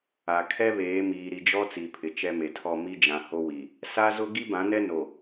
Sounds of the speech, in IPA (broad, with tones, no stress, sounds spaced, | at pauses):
a˨ kʰ ɛ˦ β eː˨˦ m iː˨ ɾ i˨ d͡ʒ ɔ˦ t͡s i˨ pʰ ɪ˨ t͡ʃ ɛ˦ m e˨ tʰ ɔ˦˨ m i˦ d͡ʒ ã˨ h o˦ w i˨ | s a˦ z ʊ˦ ɡ i˦ b ã˨˦ n ɛ˦ n o˨